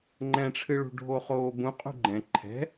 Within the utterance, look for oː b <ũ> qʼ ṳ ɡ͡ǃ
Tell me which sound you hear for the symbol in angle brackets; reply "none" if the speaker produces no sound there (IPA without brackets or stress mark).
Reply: ũ